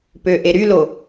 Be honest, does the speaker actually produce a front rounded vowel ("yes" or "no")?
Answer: yes